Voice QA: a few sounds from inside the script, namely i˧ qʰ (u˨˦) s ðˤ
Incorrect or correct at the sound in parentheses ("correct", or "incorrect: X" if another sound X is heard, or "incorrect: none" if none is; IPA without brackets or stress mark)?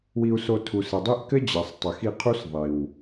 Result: incorrect: u˦